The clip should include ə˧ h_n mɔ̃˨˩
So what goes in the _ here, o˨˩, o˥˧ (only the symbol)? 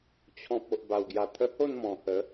o˥˧